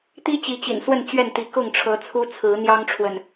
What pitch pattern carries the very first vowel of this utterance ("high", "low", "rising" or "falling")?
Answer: high